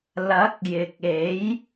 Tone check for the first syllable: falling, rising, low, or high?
rising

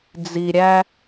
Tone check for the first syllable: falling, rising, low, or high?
low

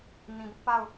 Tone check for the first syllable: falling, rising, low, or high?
low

